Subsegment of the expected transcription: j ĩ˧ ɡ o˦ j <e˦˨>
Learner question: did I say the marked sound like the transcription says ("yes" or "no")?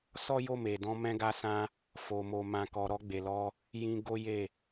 yes